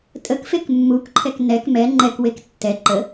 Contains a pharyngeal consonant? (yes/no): no